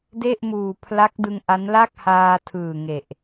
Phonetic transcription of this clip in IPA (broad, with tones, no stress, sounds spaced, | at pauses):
d e˥˩ ʔ m uː˨˩ pʰ l a˦˥ k̚ d ɯ˧ ŋ ʔ a˦˥ n l a˥˩ k̚ h aː˧ tʰ ɯː˨˩ ŋ e˨˩ ʔ